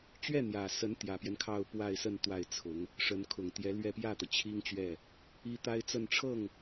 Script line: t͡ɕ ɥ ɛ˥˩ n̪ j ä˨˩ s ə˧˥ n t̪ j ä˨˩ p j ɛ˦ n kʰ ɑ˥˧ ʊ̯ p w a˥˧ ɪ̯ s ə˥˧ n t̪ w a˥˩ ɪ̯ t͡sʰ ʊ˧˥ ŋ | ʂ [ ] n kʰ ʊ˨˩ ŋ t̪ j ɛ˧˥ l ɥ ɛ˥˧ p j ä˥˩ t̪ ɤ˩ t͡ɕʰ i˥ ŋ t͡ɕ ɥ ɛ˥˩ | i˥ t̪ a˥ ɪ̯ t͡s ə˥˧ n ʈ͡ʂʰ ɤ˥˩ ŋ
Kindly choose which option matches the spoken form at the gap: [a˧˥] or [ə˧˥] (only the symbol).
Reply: ə˧˥